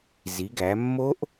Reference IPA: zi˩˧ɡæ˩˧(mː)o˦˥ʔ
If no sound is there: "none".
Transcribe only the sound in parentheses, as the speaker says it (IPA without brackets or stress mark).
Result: mː